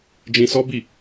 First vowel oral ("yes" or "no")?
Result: no